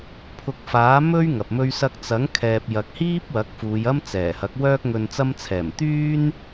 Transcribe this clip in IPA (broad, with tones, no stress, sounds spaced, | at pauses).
pʰ ʊ˧ k̚ f aː˨˥ m ɵ˥ ɥ ŋ ɐ˨ p̚ m ɵ˥ ɥ s ɐ˧ k̚ t͡s ɐ˨˥ ŋ kʰ ɛː˨ p̚ j ɐ˨ k̚ h iː˥ p̚ w ɐ˨˥ k̚ f uː˨˧ j ɐ˥ m t͡s ɛː˨˩ h ɐ˨˥ k̚ w œː˧ k̚ ŋ ɵ˨ n t͡s ɐ˧ m t͡sʰ ɛː˨˩ m t̪ yː˥ n